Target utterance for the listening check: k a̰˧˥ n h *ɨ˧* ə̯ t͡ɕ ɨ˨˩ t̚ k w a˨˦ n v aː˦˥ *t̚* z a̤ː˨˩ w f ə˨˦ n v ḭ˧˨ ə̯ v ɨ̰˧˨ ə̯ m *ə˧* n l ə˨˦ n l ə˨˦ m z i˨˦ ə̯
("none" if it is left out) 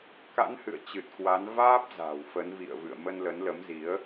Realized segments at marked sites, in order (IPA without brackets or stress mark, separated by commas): ɨ̰˧˨, p̚, ə˧